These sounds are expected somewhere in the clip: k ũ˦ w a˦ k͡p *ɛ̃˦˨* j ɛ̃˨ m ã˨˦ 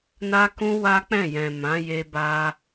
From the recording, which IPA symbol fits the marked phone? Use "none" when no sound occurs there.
ɛ̃˦˨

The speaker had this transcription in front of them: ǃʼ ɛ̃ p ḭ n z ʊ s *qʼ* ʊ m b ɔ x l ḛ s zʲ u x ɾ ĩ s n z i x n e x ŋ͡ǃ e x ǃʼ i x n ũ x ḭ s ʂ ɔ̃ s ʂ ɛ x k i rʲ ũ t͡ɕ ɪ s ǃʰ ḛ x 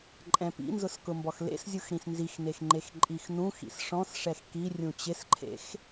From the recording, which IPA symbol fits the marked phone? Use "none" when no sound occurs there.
k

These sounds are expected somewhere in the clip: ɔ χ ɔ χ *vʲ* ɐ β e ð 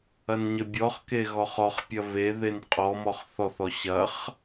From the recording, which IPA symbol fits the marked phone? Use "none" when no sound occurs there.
pʲ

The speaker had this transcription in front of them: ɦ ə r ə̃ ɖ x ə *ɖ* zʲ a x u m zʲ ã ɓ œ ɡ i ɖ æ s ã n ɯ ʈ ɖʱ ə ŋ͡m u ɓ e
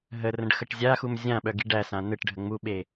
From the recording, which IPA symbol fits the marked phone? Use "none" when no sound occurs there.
ʈ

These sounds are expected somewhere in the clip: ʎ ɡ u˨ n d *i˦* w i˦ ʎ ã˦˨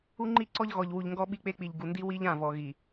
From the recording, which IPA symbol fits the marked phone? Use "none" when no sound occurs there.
i˦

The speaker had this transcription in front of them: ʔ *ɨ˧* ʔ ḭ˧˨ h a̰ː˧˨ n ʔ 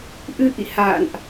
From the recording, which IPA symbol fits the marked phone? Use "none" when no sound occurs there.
ɨ˧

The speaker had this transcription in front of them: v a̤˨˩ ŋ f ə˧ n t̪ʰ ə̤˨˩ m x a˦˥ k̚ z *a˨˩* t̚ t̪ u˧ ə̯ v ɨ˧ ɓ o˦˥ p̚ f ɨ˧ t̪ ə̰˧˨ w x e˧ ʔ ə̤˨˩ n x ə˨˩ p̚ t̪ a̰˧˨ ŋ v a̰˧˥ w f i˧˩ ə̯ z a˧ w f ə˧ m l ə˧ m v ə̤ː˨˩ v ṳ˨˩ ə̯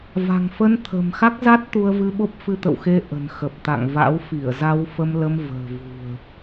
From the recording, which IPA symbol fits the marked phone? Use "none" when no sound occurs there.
a˦˥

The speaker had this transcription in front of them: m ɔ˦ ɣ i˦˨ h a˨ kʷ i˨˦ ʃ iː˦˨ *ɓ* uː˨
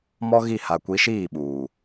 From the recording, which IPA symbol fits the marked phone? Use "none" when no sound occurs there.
ɓ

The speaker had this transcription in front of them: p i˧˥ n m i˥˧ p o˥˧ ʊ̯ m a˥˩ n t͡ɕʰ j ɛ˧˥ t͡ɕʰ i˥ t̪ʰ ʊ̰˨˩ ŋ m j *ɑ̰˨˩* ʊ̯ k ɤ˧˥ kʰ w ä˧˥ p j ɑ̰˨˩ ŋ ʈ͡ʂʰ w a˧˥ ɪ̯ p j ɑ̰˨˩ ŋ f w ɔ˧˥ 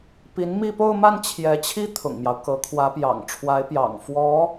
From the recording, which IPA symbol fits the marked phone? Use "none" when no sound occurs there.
ɑ˦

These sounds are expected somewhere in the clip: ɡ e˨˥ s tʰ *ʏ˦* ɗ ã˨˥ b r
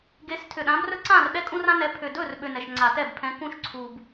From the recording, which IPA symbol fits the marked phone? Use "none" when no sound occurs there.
ʏ˨˩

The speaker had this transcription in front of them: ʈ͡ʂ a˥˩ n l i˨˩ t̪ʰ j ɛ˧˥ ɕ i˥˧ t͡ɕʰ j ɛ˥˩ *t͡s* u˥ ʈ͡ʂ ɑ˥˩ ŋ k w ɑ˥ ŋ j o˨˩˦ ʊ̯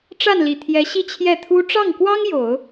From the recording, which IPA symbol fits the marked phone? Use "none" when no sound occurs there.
t̪ʰ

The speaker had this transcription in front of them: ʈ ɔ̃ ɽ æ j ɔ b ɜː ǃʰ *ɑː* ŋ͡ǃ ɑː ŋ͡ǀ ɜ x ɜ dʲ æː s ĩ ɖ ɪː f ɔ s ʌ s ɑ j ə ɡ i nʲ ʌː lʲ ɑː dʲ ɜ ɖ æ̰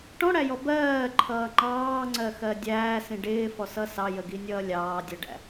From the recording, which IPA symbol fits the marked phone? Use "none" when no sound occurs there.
ʌː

